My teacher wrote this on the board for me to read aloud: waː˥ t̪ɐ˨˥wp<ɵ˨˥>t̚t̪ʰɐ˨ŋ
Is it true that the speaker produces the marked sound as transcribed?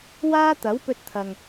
no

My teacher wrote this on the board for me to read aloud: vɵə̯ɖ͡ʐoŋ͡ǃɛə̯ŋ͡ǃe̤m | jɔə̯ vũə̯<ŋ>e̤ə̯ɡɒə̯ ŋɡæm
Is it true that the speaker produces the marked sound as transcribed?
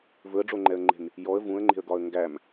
no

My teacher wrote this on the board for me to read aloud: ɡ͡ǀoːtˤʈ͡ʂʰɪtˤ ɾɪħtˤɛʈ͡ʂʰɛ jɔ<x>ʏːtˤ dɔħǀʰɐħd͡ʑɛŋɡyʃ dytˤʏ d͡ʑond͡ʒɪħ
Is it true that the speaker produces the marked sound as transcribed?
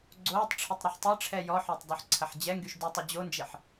no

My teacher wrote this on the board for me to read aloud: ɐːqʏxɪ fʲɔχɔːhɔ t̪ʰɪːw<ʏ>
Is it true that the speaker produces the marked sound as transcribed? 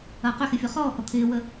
no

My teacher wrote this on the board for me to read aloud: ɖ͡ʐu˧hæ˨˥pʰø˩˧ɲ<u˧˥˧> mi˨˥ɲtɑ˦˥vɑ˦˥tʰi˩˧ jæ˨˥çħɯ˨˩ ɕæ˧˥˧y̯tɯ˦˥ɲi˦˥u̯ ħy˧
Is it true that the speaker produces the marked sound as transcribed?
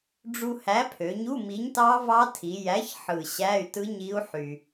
yes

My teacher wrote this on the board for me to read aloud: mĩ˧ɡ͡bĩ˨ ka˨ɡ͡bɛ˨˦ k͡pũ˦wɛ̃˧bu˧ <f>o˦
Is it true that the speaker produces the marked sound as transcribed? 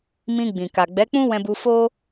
yes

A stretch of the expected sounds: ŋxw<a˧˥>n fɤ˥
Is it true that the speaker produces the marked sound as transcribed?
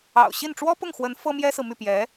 no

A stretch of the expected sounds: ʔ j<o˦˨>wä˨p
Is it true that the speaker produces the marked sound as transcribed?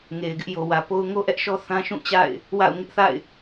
no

